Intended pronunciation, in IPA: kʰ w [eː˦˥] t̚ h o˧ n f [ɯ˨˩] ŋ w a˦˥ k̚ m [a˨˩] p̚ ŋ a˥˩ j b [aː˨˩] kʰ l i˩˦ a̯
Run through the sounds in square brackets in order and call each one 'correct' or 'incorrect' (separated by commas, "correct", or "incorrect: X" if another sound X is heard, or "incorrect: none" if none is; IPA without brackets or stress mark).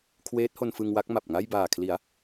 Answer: correct, incorrect: ɯ˧, correct, correct